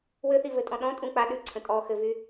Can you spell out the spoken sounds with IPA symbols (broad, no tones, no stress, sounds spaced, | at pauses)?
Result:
w ɘ θ i v ɘ tʼ ɔ̃ ɗ ɔ̃ tʼ ũ k͡p a ɗ ʉ ǀʰ ə̃ tʼ ɔ x ɘ v y